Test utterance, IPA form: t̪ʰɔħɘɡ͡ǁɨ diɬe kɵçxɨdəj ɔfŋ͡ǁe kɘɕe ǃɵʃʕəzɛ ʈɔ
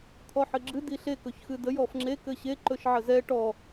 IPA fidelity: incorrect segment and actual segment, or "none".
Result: none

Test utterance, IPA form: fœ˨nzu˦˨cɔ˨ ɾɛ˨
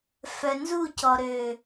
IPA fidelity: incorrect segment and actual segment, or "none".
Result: ɛ˨ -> ø˨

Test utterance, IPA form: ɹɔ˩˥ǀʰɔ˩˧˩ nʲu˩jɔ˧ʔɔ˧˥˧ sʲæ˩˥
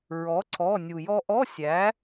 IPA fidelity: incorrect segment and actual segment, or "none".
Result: none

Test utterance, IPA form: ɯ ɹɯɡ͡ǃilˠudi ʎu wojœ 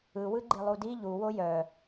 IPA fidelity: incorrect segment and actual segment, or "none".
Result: ɹ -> w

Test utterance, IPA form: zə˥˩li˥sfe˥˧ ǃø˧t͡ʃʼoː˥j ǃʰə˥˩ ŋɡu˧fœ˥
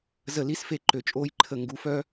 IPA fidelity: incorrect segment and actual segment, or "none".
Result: none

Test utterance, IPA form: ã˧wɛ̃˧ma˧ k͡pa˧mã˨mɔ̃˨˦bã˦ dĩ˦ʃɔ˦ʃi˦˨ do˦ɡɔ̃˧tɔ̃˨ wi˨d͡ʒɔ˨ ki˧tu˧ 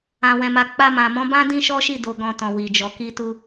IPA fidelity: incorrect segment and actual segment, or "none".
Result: o˦ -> o˧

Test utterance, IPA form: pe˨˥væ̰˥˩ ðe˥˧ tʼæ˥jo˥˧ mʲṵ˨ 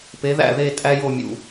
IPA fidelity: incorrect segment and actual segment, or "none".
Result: v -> ð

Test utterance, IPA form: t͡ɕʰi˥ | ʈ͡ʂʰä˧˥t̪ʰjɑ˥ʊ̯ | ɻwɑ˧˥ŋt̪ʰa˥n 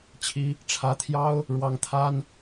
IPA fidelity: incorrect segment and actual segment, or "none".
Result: none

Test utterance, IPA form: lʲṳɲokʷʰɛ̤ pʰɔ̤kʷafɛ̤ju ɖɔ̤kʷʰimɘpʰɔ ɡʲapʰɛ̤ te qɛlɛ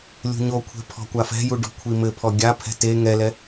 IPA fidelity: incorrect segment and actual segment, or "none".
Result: q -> ŋ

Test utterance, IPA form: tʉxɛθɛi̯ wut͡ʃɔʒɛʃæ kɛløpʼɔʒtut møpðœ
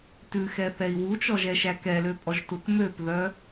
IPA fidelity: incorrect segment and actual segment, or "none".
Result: none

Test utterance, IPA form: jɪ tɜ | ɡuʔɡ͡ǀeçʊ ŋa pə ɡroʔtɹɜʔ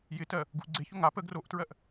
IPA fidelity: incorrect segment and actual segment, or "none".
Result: none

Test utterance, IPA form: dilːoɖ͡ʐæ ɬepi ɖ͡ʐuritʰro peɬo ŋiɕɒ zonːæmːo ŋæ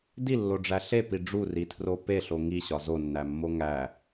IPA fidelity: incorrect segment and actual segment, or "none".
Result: none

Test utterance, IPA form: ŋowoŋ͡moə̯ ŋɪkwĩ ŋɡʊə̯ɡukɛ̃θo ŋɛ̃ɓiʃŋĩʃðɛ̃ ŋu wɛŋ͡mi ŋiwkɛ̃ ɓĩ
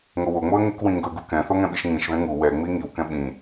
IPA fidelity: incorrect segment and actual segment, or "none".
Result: none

